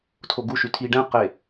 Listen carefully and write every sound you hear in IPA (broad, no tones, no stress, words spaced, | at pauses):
tʰoɡu ʃytʰi ɖɛ̃ qe